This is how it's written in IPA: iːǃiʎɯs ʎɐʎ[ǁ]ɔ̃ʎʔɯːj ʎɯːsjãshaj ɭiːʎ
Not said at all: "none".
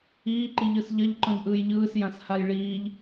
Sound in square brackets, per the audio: ǃ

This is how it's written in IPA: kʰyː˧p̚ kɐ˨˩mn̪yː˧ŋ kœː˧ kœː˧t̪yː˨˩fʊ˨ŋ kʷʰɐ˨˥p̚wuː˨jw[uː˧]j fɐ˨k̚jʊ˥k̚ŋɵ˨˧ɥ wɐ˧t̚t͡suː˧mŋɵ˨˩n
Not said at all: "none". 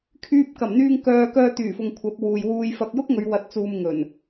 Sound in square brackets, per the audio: uː˧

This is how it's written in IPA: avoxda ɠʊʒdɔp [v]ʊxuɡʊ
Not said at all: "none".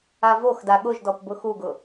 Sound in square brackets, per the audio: b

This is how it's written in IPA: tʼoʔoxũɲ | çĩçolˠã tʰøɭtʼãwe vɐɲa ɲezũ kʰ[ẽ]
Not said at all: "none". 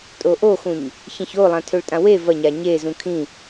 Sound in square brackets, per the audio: ĩ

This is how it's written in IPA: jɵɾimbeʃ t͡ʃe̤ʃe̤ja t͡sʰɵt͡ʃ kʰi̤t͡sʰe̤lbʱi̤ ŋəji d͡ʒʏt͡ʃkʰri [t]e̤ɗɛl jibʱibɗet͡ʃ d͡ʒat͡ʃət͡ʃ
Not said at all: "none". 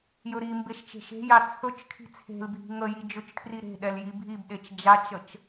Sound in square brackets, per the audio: ɾ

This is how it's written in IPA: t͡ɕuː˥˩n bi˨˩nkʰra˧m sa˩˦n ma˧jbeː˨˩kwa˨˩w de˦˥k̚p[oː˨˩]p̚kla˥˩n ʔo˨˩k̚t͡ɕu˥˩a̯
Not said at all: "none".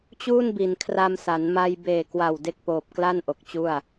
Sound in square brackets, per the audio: oː˨˩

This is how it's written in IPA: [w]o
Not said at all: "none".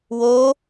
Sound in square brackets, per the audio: w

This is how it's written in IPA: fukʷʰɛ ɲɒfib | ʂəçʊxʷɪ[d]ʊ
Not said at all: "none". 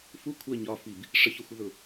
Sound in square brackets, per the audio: ð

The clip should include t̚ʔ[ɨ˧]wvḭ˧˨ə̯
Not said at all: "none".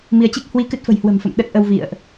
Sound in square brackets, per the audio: ə˧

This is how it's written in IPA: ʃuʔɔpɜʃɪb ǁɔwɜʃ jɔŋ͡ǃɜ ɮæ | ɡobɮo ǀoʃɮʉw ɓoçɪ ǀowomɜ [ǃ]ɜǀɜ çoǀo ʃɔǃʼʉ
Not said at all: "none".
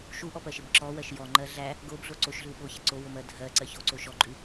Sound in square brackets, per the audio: dʱ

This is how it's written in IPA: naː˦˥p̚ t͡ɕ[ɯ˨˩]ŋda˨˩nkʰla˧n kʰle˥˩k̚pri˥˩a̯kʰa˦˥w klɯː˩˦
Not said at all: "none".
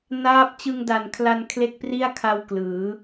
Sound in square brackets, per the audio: ɯ˧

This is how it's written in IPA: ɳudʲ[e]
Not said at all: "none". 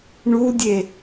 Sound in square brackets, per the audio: e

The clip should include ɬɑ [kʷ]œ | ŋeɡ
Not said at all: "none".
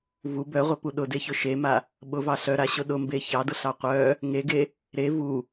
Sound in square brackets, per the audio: qʷ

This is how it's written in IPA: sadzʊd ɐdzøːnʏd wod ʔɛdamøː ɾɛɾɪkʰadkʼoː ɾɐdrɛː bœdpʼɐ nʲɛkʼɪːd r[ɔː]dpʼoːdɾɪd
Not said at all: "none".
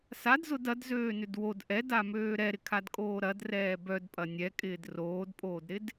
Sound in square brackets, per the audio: oː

